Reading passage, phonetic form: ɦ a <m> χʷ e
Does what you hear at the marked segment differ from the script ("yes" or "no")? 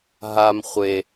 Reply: no